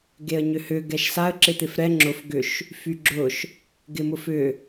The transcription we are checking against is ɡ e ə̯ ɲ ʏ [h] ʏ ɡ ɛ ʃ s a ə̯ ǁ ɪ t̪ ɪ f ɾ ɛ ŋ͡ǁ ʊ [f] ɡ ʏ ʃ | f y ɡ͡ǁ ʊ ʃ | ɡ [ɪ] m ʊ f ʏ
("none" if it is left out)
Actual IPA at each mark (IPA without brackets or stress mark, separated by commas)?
h, f, ɪ